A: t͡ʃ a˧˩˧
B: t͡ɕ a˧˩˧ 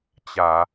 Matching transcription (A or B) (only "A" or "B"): B